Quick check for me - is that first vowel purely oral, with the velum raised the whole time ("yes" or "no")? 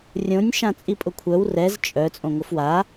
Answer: no